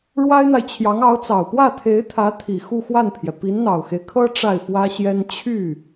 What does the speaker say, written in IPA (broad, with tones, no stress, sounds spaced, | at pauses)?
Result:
ɻ w a˥ ɪ̯ n̪ a˨ ɪ̯ t͡ɕʰ j ɑ˧˥ ŋ ɑ˧˥ ʊ̯ t͡s ɑ˨˩ ʊ̯ p w ä˥˩ t̪ʰ e˧˥ ɪ̯ t̪ʰ ä˧˥ t̪ʰ i˨˩ x u˥˧ x w a˥˩ n pʰ j ɛ˩ p i˧˥ n n̪ ɑ˨˩ ʊ̯ x e˦ ɪ̯ kʰ ɤ˥ ʈ͡ʂ a˥˩ ɪ̯ f w ä˥ ɕ j ɛ˥ n t͡ɕʰ y˥˩